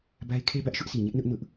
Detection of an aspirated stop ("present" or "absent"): present